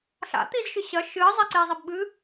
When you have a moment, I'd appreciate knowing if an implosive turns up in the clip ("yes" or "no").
yes